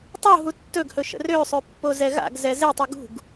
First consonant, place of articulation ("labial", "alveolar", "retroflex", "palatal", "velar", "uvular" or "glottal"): alveolar